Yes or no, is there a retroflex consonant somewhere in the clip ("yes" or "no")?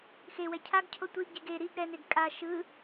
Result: no